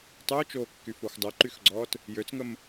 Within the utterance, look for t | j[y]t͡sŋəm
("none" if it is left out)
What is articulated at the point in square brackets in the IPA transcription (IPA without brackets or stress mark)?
ø